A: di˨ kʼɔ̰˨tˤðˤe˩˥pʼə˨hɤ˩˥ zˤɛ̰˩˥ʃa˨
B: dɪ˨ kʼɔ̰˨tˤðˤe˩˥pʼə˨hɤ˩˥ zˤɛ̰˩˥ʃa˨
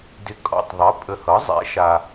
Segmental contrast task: B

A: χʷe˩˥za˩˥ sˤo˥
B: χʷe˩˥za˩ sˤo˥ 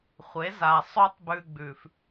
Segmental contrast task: B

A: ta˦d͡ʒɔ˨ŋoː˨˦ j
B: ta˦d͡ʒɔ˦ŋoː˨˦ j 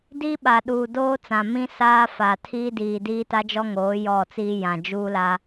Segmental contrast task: B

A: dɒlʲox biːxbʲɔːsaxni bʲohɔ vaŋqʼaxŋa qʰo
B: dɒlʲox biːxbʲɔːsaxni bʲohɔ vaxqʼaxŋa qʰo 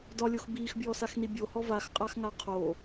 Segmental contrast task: B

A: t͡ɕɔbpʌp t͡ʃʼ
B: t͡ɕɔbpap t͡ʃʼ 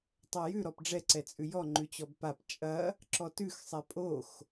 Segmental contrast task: B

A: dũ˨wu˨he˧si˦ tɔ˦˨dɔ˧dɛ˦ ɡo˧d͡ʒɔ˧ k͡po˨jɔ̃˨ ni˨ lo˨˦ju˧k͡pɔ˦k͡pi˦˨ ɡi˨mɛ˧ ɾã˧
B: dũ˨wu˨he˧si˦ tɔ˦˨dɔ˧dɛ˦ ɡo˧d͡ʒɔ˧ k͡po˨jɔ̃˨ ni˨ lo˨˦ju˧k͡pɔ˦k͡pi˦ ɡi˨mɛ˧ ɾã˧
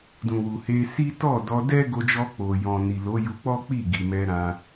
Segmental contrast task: A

